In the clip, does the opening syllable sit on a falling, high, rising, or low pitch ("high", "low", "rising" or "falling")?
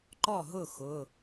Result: falling